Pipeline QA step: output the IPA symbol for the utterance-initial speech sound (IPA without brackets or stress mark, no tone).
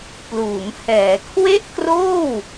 p